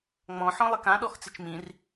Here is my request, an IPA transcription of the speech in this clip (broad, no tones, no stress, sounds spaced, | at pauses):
ŋ͡m ɔ̃ ħ ɔ̃ lˠ e k ã ɗ ɔ x t͡s ɪ t͡ʃ m ĩ r